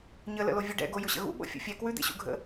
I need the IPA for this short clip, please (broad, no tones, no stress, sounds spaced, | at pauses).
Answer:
ɲ ə l ə̰ l o vʲ ʉ ɖ ɛ̰ ɡ o j ʊ ɕ ə̰ ɣ ṵ ɓ o̰ fʲ o̰ fʲ ɛ k w ʉ d̪ ḛ ɕ ṵ ɡʱ ə̰